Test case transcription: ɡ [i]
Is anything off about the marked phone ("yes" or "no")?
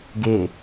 yes